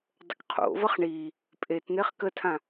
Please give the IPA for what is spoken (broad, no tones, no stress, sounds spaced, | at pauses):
dˤ ə k qʰ o̰ v ʌ χ ɳ i | pʼ e t n̪ e χ k ə tʰ ã